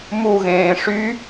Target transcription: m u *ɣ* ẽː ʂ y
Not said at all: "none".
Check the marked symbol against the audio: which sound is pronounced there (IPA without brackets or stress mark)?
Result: ɣ